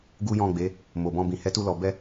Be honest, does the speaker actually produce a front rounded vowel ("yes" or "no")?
no